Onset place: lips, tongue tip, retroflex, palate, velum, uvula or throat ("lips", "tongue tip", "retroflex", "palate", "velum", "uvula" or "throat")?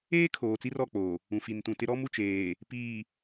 velum